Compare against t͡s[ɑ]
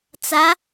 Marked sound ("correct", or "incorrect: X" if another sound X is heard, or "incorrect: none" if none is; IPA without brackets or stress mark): incorrect: a